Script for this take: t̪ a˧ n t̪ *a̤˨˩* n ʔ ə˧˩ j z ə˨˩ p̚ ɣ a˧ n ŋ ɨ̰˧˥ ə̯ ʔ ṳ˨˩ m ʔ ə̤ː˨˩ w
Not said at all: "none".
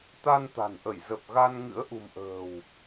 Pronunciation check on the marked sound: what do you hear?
a̤˨˩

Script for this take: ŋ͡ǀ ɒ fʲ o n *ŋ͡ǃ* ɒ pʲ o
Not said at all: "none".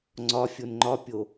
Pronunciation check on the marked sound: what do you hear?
ŋ͡ǃ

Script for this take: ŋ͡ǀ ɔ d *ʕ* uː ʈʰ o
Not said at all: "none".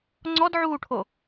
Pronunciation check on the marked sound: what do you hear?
ʕ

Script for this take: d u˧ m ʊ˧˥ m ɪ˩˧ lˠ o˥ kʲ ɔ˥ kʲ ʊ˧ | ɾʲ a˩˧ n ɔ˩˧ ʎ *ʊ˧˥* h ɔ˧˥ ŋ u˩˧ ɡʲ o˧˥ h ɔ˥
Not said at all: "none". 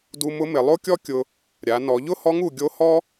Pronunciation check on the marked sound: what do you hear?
ʊ˥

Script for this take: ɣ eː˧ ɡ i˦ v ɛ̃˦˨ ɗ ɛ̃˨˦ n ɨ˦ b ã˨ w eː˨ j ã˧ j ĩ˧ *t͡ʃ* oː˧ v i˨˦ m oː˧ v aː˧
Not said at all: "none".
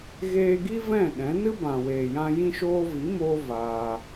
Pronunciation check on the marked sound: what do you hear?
ʃ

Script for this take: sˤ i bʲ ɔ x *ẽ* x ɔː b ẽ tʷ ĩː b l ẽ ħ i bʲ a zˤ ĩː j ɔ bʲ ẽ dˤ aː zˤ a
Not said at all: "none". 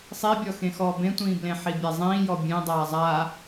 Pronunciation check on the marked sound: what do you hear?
ẽ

